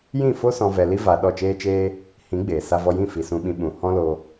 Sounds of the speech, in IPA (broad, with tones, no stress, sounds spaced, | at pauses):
j ĩ˦˨ f o˦ s ɔ̃˧ v ɛ˧ l i˦ v a˧ ɗ ɔ˦˨ t͡ʃ eː˦ t͡ʃ eː˦ | h ĩ˨˦ ɡ͡b eː˨ s a˧ v ɔ˧ j ĩ˦˨ f i˨ s ũ˧ ɓ ĩ˧ ɓ ũ˧ h ɔ̃˦ l o˧